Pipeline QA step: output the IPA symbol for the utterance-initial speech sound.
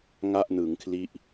ŋ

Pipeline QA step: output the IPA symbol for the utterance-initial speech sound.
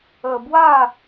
ə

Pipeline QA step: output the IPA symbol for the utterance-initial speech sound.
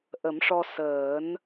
ʔ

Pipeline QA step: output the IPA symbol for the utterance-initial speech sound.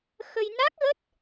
x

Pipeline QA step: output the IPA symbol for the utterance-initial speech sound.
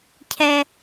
cʰ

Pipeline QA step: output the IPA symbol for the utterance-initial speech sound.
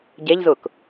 ɟ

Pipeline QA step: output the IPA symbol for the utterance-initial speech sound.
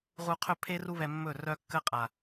ʁ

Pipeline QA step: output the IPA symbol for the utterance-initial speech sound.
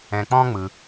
ɛ̃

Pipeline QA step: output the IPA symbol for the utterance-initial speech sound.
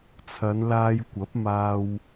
t͡sʰ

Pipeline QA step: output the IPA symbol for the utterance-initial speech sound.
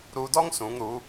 ɾ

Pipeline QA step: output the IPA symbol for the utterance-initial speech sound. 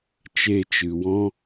t͡ʃ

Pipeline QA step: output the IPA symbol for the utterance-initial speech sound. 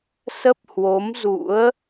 s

